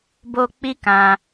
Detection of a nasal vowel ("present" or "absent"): present